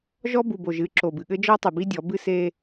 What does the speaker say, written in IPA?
ʒ ɔ˦ b u˨ b o˨ ʒ ɨ˨˦ ǁ o˨ b ɨ˨ ɠ ɘ˦ d͡ʒ ɔ˦ tˤ ɨ˨ b i˦ dʲ ɔ˨˦ b ɨ˦ s e˦

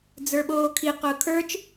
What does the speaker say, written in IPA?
d͡z ə˞ ɓ oː kʰ i q ʊː kʰ ə˞ t͡ʃ

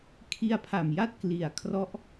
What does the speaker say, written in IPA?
kʰ i˧ a̯ pʰ a˨˩ m j a˦˥ t̚ k l i˨˩ a̯ kʰ r ɔ˦˥ ʔ

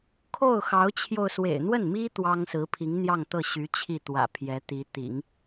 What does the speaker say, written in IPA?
kʰ o˥˩ ʊ̯ x ɑ˧˥ ʊ̯ t͡ɕʰ j o˧ ʊ̯ s w ḛ˨˩ ɪ̯ n̪ w ə˥˩ n m i˥ t̪ w ɑ˥ ŋ s ɹ̩˧˥ pʰ i˧˥ ŋ n̪ j ɑ˥˧ ŋ t̪ ɤ˥˩ ɕ y˧˥ t͡ɕʰ i˥˩ t̪ w ä̰˨˩ pʰ j ɛ˧˥ t̪ i˧˥ t̪ ḭ˨˩˦ ŋ

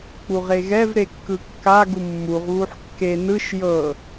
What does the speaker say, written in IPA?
k͡p u ʁ e ɣ ɛ v ɾ e kː ɯ kː a ɡ u mː u ʁ β u ħ kː e n ɯ ʃ j ɤ

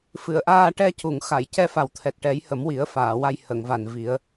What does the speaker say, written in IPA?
f ɨ˨˩˨ ə̯ ʔ aː˧ ʈ ɛ˧ c u˨˩˨ ŋ x a˨˩˨ j c ɛ˧ f a˨˩ w t̪ʰ ɛ˨˩ t̚ ʈ ɛ˨˩˦ j h ə˨˩˦ m w i˨˩˦ ə̯ f aː˨˩˨ w a˧ j h ə˨˩˨ ŋ v a˨˩ n v i˨˩˦ ə̯

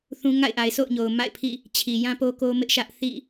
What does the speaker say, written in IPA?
θ ũ˦ ŋ a̰˦˨ ɪ̯ ʔ a˨ ɪ̯ sʰ o̰˦˨ ʊ̯ ɲ o˨ ʊ̯ m a̰˦˨ ɪ̯ pʰ ḭ˦˨ | t͡ɕʰ i˨ j ã˦ p o˦ k o˦ m ɪ˦ ʔ ʃ ä˦ ʔ θ ḭ˦˨

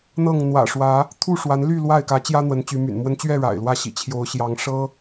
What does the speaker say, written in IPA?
n̪ ɤ˥˨ ŋ n̪ w ä̰˨˩ ʂ w ä˨˦ | t̪ʰ u˥˨ ʂ w a˨˦ n l y˥˨ l w a˥˨ ɪ̯ k ä˨˦ t͡ɕ j ä˦ n̪ w ə˨˦ n t͡ɕ y˨˦ m y̰˨˩ n m w ə˦ n t͡ɕ ɥ ɛ˥˨ ɻ a̰˨˩ ɪ̯ l w ä˥˨ ɕ ḭ˨˩ t͡ɕʰ j o˨˦ ʊ̯ ɕ j ɑ˨˦ ŋ ʂ ɤ˦

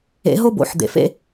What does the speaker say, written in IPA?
ḛ˨˦ ɦ o˦ b o̰˨˦ ħ d̪ ḛ˨ f ḛ˦

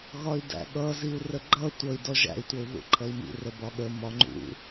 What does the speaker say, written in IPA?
ɣ ɒ y̯ d æ̰ ɠ ʌ z i u̯ r ə ɡ͡ǃ ʌ tʷ ʌ i̯ d ɔ ʒ æ̰ y̯ tʷ ʌ u̯ ð ṵ ǃʰ ʌ i̯ m ḭ r ə b ɒ ɠ ə m ɒ ŋ͡ǃ ṵ

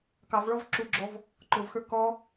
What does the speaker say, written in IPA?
k ɑ v ɭ ɔ v ǁ u ɡ͡ǁ ɔ v | ǃ ʊ v x ə˞ k ɔ

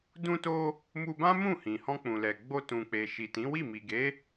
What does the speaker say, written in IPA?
d ũ˧ t o˧ | m u˧ b ã˦ m ũ˦˨ h ĩ˨ h ɔ̃˧ k͡p ũ˨ l ɛ˨ ɡ͡b o˧ t ũ˨ k͡p e˨ ʃ i˨ t ĩ˨˦ w i˦˨ m i˨ ɡ e˨˦

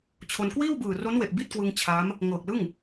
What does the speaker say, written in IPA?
t͡ɕʰ o˧ n k w iː˥˩ w b ɯː˨˩ r o˦˥ n w e˨˩ ʔ b i˥˩ t̚ k w ɯ˧ ŋ t͡ɕʰ a˦˥ m | ŋ ɤː˨˩ k̚ l ɯ˥˩ ŋ

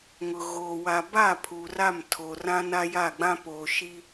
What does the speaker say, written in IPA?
ŋ ʊ˨ ɣ oː˨ w a˨ b a˦˨ pʰ u˨ r a˦˨ m tʰ o˨ r ã˦ n a˦ j a˦˨ ɡ͡b ã˦ p oː˨ ʃ i˦

